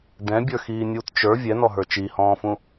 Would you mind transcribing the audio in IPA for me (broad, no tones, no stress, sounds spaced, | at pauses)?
d ɛ̃ bʲ ə˞ x iː nʲ uː t t͡ʃ ə˞ vʲ ɛ n ɔ ɦ ə˞ t͡ʃ i h ɔ̃ː f ũ